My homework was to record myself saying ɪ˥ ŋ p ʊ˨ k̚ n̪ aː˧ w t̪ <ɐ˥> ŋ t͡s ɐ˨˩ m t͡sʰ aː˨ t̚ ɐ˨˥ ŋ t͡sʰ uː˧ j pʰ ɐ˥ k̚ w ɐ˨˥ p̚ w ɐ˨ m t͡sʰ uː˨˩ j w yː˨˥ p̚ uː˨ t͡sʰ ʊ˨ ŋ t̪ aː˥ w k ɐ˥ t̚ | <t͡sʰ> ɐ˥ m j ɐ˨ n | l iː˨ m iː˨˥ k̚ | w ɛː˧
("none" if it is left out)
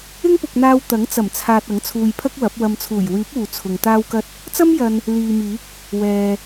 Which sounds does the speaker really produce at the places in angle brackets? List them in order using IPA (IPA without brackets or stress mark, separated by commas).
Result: ɐ˨˥, t͡s